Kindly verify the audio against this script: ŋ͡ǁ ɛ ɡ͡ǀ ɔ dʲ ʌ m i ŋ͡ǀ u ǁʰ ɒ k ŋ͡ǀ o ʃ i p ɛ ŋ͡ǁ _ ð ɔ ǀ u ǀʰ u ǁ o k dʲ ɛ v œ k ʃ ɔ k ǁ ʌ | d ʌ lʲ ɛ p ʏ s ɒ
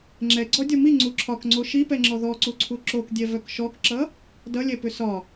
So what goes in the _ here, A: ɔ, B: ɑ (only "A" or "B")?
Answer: A